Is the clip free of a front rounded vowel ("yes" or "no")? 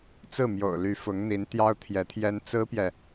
no